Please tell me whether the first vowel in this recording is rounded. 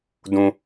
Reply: yes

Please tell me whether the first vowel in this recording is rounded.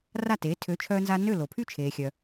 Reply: no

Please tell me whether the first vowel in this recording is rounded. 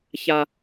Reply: no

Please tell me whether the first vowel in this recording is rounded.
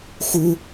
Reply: yes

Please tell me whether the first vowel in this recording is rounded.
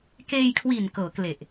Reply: no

